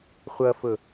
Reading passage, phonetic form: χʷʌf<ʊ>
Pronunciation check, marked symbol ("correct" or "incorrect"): correct